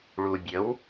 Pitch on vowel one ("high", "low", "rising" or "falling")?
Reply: low